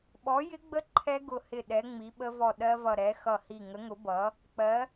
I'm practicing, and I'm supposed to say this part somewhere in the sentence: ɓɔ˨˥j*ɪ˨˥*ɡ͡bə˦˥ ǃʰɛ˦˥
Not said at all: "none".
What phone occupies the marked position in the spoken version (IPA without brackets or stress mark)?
ɪ˦˥